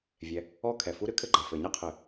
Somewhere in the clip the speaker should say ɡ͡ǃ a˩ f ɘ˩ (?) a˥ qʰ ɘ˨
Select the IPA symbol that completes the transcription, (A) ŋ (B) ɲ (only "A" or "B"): B